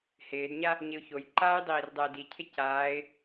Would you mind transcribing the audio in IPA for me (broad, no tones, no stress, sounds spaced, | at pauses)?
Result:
h ɪː d ɲ a | ɲ ɪ ʊ̯ ç o j ǃ aː j dˤ iː r dˤ ɛ ɪ̯ d i cʰ ɪ c aː ɪ̯